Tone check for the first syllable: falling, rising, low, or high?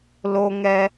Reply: high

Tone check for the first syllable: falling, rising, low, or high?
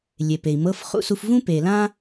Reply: low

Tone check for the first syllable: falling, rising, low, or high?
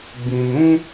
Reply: low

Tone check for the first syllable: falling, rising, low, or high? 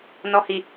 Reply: low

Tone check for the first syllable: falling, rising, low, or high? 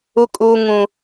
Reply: high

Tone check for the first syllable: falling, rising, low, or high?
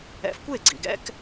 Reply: rising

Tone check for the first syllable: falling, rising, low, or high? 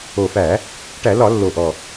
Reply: low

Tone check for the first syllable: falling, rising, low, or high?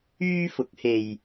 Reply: high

